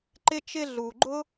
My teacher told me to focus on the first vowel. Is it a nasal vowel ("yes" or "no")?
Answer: no